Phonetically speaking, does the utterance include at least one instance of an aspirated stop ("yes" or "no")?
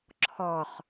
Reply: yes